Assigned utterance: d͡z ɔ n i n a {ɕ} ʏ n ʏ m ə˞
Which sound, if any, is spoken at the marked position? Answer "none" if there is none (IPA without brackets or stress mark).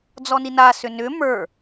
s